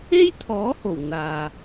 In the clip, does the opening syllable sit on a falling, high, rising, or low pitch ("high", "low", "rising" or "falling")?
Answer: high